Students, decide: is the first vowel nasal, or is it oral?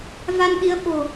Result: oral